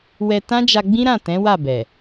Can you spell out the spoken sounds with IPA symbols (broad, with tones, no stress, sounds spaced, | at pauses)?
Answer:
w ɛ˧ t ã˦ d͡ʒ a˧ ɡ͡b ĩ˦ ɾ ã˦˨ t ɛ̃˨˦ w a˦˨ b ɛ˨